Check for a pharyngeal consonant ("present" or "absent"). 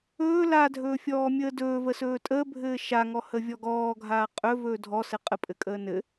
absent